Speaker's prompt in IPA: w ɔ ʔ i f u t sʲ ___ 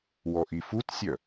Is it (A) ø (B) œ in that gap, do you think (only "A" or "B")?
B